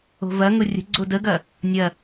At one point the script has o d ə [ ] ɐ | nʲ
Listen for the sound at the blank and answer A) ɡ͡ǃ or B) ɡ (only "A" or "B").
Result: B